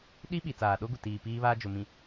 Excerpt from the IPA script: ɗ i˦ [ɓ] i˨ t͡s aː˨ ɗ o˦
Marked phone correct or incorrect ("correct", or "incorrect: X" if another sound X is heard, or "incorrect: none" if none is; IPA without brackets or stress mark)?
correct